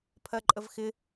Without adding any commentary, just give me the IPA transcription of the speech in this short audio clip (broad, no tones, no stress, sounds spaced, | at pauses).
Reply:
pʰ ɜ ǃʼ ə v x ɪ